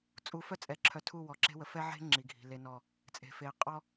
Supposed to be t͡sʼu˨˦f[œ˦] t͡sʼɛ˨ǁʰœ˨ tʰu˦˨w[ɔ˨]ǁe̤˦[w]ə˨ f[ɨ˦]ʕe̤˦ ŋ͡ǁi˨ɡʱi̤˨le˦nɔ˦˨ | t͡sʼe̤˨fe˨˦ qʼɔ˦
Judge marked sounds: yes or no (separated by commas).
yes, yes, yes, no